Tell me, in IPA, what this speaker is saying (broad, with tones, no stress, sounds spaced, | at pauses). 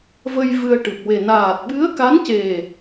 v ə˧ j v ɨ˧ ə̯ ʈ ɨ˨˩ p̚ w e˨˩ n aː˨˩ t̚ ɓ ɨ˧˥ ə̯ k a˧˥ n c e˨˩